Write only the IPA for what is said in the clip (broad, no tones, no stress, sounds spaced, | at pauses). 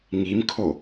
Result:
ŋ i m kʰ o